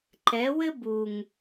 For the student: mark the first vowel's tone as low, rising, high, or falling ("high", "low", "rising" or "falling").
rising